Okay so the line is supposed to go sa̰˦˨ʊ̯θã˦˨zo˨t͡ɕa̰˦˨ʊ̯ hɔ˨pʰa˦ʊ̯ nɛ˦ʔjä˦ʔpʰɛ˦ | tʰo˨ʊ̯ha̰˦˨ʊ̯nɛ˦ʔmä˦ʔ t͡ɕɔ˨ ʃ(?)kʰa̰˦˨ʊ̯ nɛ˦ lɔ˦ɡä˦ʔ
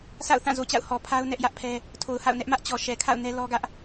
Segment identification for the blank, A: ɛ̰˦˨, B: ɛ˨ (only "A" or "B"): B